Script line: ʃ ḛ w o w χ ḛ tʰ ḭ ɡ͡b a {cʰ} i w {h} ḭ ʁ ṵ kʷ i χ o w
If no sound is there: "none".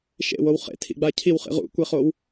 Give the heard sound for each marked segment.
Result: cʰ, χ

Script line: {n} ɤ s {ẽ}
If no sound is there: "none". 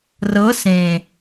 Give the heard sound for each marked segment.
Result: r, ẽ

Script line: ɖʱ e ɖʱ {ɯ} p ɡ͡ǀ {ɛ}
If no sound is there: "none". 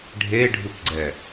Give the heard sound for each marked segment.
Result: u, ɛ

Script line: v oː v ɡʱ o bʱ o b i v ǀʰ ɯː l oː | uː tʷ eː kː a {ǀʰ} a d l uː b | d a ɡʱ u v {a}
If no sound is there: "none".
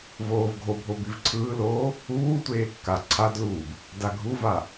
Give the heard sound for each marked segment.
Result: ǀʰ, a

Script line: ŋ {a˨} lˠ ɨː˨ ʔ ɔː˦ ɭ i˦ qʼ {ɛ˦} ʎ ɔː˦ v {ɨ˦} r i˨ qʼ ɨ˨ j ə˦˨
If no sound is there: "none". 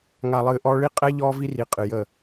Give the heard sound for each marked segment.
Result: a˨, ɛ˦, i˦

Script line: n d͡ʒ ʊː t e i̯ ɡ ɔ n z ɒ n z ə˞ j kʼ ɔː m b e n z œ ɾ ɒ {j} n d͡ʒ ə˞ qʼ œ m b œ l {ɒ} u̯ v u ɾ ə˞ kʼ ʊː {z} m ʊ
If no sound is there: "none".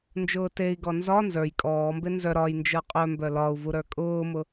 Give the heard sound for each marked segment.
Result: j, ɒ, none

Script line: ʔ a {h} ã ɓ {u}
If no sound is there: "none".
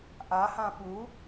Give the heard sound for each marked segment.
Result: h, u

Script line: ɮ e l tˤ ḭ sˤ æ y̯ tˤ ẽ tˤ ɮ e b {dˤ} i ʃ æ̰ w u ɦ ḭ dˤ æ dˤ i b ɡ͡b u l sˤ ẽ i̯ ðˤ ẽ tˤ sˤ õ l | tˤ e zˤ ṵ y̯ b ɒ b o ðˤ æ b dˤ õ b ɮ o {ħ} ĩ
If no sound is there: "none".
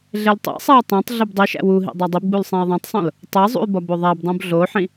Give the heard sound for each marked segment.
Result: dˤ, ħ

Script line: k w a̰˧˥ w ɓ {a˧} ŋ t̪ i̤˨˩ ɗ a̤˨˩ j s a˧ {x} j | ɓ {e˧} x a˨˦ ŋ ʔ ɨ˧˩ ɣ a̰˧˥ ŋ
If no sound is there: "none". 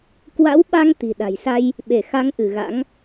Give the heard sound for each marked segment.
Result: a˧, none, e˧˩

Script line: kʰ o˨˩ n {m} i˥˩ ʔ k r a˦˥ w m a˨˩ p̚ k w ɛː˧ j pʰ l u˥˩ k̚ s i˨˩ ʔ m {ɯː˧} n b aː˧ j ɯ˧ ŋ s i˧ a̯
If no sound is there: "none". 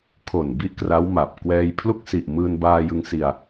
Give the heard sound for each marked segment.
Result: b, ɯː˧

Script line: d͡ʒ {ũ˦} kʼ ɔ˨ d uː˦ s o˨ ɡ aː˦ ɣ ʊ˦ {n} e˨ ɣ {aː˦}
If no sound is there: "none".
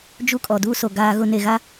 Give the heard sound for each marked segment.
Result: u˦, n, a˦

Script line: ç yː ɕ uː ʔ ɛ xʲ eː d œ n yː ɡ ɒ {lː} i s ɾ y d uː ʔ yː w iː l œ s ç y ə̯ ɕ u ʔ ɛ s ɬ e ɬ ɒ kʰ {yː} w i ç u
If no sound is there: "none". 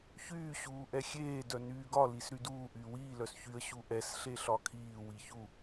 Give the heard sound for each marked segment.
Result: l, iː

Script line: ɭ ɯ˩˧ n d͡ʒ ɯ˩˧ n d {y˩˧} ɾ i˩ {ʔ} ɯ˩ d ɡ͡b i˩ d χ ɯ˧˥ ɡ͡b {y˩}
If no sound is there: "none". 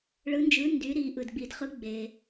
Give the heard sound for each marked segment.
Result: y˩˧, ʔ, e˩

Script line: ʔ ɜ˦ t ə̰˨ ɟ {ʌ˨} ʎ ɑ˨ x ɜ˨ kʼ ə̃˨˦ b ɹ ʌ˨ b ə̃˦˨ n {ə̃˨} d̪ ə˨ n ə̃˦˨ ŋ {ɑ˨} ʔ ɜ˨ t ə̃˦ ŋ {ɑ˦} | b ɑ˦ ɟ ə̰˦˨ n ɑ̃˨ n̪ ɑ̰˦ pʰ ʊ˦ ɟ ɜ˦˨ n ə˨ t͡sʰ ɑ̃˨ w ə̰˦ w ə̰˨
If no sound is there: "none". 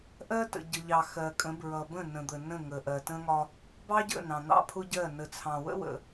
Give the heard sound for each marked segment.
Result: ə˨, ə̃˨, ə˨, ɒ˦

